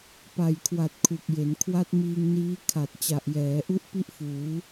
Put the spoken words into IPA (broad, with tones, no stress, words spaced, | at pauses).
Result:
pa˨˩jkʰwa˨˩t̚ kʰu˨˩k̚je˩˦n kʰwa˦˥t̚miː˧ŋniː˦˥ kʰa˨˩t̚ t͡ɕa˨˩ʔjɛː˩˦ʔu˦˥ʔ pi˥˩ʔfuː˩˦